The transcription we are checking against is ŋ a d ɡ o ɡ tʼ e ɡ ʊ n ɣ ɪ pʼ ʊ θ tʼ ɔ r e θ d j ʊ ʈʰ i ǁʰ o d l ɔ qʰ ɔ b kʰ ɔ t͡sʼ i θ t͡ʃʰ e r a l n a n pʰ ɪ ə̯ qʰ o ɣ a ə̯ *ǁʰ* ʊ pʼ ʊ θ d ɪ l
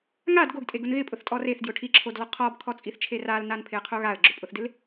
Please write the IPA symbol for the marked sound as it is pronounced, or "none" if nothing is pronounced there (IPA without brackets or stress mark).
ɡ͡ǁ